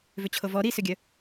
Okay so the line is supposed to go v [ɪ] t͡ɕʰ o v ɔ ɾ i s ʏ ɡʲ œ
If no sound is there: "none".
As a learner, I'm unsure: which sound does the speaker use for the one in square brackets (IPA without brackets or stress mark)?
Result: ʏ